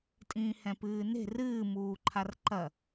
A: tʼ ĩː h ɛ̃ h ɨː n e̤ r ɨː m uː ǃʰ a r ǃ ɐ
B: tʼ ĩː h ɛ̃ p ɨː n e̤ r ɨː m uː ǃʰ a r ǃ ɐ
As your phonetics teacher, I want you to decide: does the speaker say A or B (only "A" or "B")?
B